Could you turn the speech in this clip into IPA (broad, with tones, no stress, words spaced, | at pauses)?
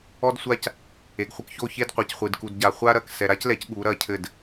ɔ˦dsʷa˦c | e˨ɡχʷɘ˦k ço˦˨çe˦dqʷe˨cχʷɨ˨d ku˨dɟa˨ χʷa˦ɾɐ˨k sɛ˨ɾa˦clɛ˨˦c ɠu˨˦ɾɐ˦˨cʰɘ˦˨d